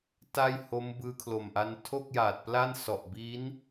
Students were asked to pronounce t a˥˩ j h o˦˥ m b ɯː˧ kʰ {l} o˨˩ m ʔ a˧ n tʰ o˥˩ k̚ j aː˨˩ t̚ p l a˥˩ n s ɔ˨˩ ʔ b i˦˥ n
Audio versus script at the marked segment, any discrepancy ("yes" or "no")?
no